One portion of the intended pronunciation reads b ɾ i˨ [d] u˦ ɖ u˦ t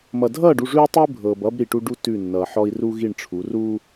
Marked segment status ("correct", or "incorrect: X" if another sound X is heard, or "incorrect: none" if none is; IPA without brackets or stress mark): incorrect: ʈ